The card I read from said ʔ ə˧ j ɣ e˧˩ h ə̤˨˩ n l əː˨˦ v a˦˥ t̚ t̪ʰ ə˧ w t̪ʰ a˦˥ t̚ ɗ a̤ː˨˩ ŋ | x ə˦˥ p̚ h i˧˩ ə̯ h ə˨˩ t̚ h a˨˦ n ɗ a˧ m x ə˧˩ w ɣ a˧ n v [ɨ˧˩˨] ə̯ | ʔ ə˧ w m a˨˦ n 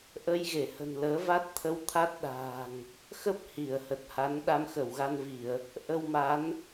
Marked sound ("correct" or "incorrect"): incorrect